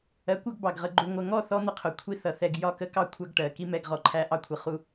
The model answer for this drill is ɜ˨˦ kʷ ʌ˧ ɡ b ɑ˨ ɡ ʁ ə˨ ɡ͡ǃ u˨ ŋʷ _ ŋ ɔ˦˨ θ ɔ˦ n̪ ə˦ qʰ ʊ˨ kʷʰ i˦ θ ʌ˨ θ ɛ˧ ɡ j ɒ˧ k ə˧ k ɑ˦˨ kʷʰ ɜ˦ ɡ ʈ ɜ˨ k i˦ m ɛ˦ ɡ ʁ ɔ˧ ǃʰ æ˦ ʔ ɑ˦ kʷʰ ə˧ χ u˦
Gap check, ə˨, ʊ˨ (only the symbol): ə˨